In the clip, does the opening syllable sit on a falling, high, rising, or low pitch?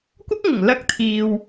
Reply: high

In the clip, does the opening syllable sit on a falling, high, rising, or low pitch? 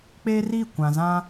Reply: high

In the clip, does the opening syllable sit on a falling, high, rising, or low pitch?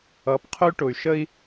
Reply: rising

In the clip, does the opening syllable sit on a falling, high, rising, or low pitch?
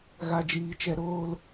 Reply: low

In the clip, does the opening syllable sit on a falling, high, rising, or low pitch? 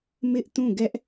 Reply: high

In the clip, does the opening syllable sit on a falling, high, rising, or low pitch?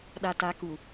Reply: low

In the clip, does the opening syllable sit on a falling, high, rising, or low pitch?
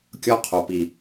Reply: high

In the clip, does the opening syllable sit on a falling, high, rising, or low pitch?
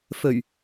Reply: low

